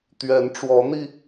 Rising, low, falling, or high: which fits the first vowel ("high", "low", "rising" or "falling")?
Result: rising